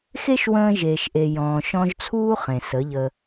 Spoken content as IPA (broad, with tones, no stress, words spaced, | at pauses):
xe˦ʃwə̃ː˧ʒeː˨ʃʔe˨ jɔ̃ː˨ʃɔ̃˧ʒ t͡sʰuː˦ χẽ˨sə˨˦ʎə˧